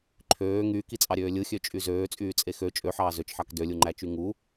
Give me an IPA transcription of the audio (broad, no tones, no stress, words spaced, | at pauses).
ǃʰøː ŋyːkit͡sʼɑɾʲøː lʲɯxʲøt͡ʃʼy zøːt͡sʼyːt͡sʼe xø t͡ʃʼøħɑː zøt͡ʃħɑk dølʲuŋ͡ǃæt͡ʃy ŋu